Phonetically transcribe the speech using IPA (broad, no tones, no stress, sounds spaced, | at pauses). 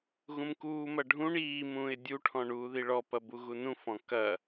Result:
ɣ ũ m k uː m ɐ ɖʱ ũ ɳ iː m ũː ɪ̯ dʲ u ʈʰ ɔ̃ ɳ uː ð i ɭ ɔ p ɐ b u ɣ u n ũ f ɔ̃ k ɐ